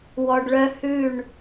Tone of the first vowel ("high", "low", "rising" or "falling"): low